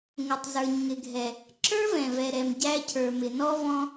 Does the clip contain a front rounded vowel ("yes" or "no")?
no